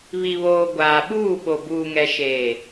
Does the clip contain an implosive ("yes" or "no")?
yes